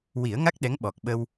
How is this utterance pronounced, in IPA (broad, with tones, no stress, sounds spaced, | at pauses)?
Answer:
w i˨˩˦ ə̯ ŋ a˦˥ k̚ ɗ ɛ˧˥ ŋ ɓ ɔ˨˩ k̚ ɓ ə˧ w